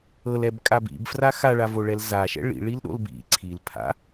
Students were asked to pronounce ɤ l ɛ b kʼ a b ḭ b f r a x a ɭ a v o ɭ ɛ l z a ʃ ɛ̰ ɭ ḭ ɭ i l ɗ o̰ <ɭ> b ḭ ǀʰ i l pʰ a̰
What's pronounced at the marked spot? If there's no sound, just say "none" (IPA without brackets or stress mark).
l